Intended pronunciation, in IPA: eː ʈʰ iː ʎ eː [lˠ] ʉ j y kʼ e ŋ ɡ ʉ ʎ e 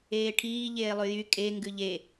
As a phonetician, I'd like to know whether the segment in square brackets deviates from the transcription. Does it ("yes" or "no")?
no